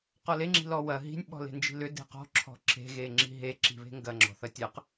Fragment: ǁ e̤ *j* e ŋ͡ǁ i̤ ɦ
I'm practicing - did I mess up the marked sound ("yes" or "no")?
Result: yes